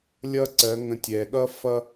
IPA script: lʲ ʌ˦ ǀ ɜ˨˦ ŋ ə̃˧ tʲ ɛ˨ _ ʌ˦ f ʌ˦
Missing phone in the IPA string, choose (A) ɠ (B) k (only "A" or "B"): A